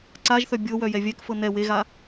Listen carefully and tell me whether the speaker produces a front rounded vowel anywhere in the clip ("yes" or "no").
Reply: yes